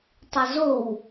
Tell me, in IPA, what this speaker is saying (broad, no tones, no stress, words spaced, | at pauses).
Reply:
tˤəzow